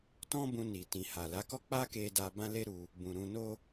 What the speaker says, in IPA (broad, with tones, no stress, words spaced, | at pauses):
tɔ̃˦ bũ˧ni˨ tĩ˨ha˨la˨˦kɔ˦ k͡pa˦ke˧da˧ bã˦le˦ɾu˧ | bũ˨ɾũ˧no˦